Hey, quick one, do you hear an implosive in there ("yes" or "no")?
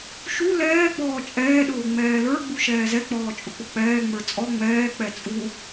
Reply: yes